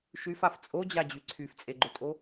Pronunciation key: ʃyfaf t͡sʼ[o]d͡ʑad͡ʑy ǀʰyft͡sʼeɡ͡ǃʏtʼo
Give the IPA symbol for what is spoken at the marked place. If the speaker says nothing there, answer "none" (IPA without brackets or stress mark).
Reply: o